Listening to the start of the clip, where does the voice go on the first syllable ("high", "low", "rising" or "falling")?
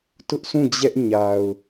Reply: high